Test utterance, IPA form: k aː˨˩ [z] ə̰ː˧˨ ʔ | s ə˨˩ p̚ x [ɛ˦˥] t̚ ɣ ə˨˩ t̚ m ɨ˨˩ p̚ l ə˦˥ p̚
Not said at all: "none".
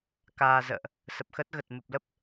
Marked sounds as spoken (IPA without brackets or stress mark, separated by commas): z, ə˦˥